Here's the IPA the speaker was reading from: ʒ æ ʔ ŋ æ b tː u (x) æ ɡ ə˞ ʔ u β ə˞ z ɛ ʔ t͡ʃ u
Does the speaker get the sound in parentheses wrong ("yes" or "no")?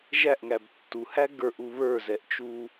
yes